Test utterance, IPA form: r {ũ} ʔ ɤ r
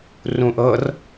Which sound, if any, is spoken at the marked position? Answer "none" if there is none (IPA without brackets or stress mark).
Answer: ũ